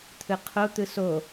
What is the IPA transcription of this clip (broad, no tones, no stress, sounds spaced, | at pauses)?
t̪ʰ ɯ qʰ o t̪ ɯ s o